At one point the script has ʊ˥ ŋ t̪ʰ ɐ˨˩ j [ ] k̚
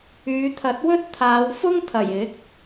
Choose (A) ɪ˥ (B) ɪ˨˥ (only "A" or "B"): B